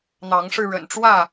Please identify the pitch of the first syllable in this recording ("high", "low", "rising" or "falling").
rising